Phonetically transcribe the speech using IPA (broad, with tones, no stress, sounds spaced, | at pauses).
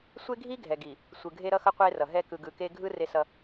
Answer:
sʷ e˦ ɡʱ i˦ ɡʱ ɛ˨ ɡ i˨ | sʷ ɯ˨ ɡʱ e˦ ɾ ʌ˦ x ʌ˦ qʷ e˦ r ʌ˨ ɦ ɛ˦ k ɯ˨ ɡ ɯ˨ k e˦ ɡʱ ɯ˦ r e˦ s ʌ˦